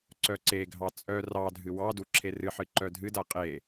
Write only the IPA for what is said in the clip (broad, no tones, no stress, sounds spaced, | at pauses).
ǀ œ ǀ e ɡʱ ɑ t͡sʼ œ r ɑ dʱ ɨ w ɑ d u ǁʰ e r ɨ ħ ɨ ǃ œ dʱ ɨ d a qʼ e